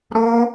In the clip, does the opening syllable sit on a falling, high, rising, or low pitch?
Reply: high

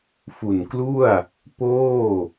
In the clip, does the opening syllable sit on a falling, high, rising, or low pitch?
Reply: low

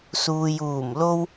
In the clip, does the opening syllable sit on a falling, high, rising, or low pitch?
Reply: low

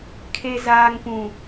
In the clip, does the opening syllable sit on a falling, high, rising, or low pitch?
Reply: low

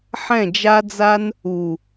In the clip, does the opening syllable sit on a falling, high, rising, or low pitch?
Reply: falling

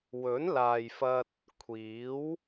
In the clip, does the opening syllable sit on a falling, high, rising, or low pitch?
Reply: rising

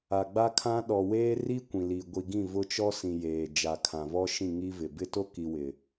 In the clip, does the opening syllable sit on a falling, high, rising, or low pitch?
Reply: low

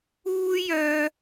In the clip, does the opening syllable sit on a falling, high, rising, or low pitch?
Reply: high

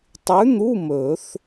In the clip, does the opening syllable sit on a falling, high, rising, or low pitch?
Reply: rising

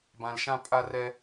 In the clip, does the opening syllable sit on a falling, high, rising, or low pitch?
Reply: low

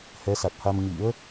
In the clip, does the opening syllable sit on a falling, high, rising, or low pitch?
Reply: rising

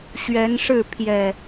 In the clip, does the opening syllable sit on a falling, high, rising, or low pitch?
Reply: rising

